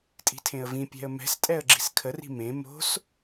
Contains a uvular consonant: no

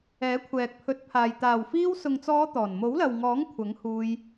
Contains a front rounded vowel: no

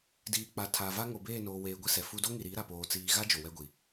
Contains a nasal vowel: no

